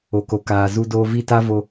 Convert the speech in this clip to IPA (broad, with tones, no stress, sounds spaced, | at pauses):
o˨ k o˨ k aː˨ z u˦ d oː˦ v i˦˨ t a˦ v o˦